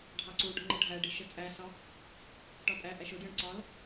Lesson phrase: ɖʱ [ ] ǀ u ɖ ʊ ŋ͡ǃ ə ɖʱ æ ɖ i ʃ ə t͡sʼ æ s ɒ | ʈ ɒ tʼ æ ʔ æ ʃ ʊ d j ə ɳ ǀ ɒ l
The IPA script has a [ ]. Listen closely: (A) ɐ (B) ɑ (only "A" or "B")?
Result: B